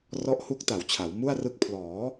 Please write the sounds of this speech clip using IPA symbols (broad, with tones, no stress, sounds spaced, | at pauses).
r ɔ˦˥ ʔ h u˦˥ k̚ t a˨˩ w t͡ɕʰ a˩˦ w m u˥˩ a̯ r ɯ˦˥ k̚ pʰ l ɔː˩˦